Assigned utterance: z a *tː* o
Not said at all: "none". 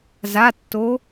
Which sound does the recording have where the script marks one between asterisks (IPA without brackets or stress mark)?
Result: tː